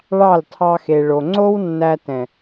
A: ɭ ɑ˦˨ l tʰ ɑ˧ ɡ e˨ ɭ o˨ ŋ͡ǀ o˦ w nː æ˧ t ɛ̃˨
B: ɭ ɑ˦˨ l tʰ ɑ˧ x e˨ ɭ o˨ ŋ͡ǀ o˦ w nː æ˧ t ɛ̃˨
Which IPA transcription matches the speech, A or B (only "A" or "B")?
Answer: B